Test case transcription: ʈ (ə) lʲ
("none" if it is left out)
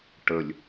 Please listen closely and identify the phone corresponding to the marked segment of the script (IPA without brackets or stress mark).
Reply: ə